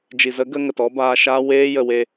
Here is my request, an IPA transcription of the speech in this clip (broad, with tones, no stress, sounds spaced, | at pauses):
d͡ʒ i˨ z ə˨˦ ɡ ə˧ ŋ ə˨ t ɔ˦ b aː˧ ʃ aː˦ w eː˧ j ə˨ w e˧